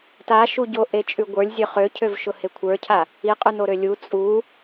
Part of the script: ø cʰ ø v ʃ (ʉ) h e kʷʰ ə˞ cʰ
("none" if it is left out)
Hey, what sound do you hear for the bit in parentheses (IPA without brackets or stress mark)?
ʊ